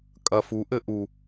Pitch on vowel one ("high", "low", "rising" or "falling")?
low